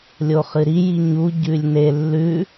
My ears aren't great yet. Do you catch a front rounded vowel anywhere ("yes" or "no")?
no